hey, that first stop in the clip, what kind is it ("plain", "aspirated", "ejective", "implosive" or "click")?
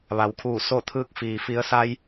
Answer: aspirated